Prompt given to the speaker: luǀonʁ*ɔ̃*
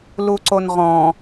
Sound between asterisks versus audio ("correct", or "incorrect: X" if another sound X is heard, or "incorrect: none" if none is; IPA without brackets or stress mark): correct